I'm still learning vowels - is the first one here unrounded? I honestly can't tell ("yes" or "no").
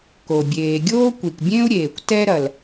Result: no